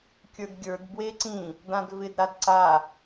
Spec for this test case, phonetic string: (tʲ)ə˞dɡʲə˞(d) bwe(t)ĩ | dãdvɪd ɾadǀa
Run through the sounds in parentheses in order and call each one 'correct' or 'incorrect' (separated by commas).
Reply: incorrect, correct, incorrect